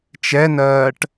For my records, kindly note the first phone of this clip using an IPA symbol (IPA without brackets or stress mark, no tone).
t͡ʃ